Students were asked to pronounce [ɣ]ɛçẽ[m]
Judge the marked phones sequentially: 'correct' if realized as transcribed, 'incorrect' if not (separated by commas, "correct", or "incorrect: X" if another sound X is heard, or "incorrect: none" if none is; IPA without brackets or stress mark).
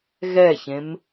correct, correct